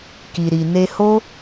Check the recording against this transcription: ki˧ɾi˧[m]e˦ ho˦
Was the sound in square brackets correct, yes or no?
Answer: no